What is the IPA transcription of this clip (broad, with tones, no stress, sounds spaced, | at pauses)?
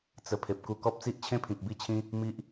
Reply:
t͡s ə˧ pʰ e˨ p̚ k u˧ k ɔ˦ p̚ t͡s i˦ ʔ t͡ɕʰ ẽ˦ pʰ ĩ˨ k̚ b i˦ t͡ɕʰ ĩ˦ | m i˦ ʔ